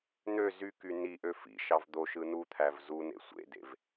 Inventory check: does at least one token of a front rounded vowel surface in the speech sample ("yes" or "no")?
yes